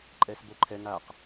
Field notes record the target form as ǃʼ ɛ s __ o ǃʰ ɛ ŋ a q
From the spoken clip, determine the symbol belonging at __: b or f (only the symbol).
b